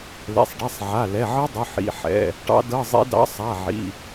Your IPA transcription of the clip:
l ɛ̰˩˧˩ sˤ ɖ ɛ˩˧˩ sˤ ʕ a˩˧˩ l ɛ˩˧˩ ʕ ɤ˦˥ dˤ ʊ˩˧˩ ħ ḭ˩˧˩ ħ ɛ̰˩˧˩ | ʈ ɑ̰˦˥ d ɤ˧˥˧ zˤ ḭ˦˥ d ɑ̰˦˥ sˤ a˩˧˩ ʕ ḭ˩˧˩

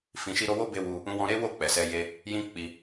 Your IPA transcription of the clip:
f ĩ˨ ʃ i˧ ɾ o˧ w o˦ b e˧ w u˧ | ũ˧ w ɔ̃˧ ɾ e˦ w o˦˨ k͡p ɛ˨ s ɛ˧ j e˧ | j ĩ˦ k͡p i˧

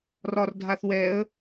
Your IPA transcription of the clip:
r ɒ r dʱ a θ w ɛ ə̯

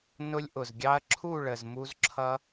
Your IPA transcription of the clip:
n ʊ˧ lʲ ʔ ʊ˨ z ɡʲ ɑ˧ ɐ̯ ǁʰ u˦˨ ɭ ə˨ z m u˧ z ǁʰ ʌ˧

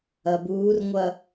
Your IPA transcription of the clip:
ɐ b uː r ŋʷ ɐ

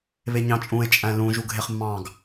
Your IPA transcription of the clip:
β e ɲ ɑ̃ t͡ʃʼ ũ e̯ t͡ʃʼ æ̃ l ũ ʒ u ɡʱ e χ mː ɑ̃ ɡ

